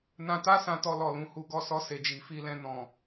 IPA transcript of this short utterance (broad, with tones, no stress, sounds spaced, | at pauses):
n ã˧ t a˦ s ã˧ t ɔ˧ l ɔ˨ l ũ˨˦ h u˧ ɡ ɔ˧ s ɔ˧ s e˨ d͡ʒ i˨ f i˧ l ɛ̃˧ n ɔ̃˨